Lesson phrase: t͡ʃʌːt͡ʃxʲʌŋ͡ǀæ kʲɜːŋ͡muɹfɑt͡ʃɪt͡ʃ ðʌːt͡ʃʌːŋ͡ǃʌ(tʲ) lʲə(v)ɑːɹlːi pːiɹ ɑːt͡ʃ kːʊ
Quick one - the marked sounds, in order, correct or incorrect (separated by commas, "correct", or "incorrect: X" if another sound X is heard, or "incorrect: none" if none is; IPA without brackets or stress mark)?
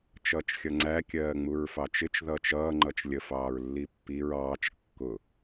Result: incorrect: t͡ʃ, incorrect: f